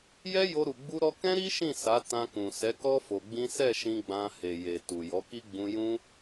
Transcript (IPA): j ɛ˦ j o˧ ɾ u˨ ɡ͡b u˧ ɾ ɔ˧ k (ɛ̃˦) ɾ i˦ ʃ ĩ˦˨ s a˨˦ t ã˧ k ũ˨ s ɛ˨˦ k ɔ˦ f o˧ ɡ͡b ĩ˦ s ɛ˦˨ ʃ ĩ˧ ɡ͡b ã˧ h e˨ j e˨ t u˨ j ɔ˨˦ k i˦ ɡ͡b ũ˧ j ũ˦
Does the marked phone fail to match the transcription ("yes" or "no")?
no